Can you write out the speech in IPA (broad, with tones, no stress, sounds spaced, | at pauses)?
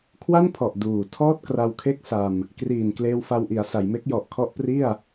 kʰ w a˥˩ n pʰ ɔ˨˩ ʔ d uː˨˩ tʰ ɔː˥˩ t̚ k r a˧ w kʰ e˥˩ k̚ s a˧ m | k r iː˨˩ n k l eː˧ w f a˧ w ʔ i˩˦ a̯ s a˩˦ j m e˦˥ k̚ j ɔ˨˩ ʔ kʰ ɔ˦˥ ʔ p r i˥˩ a̯